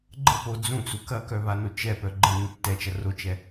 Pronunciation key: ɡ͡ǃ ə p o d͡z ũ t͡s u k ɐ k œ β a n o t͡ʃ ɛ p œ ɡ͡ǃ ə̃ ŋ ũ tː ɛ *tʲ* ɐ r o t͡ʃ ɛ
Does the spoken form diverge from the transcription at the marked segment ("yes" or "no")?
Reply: yes